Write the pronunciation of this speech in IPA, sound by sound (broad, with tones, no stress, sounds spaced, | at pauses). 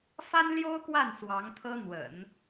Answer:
f a˥ n l j o˥ ʊ̯ k w a˥˩ n s w ɑ˧˥ ŋ t̪ʰ ɤ˥ n̪ w ə̰˨˩˦ n